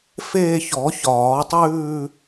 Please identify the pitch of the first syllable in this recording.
falling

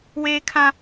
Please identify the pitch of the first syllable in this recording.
high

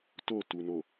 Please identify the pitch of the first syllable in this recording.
falling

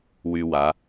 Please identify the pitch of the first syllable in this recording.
high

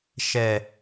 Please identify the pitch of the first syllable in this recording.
low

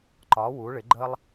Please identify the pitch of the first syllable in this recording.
rising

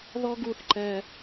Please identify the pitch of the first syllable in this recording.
high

